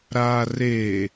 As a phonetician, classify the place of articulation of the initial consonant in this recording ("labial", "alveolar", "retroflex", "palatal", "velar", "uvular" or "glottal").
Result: alveolar